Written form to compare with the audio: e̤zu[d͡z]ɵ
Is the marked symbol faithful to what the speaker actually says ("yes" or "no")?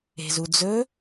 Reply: yes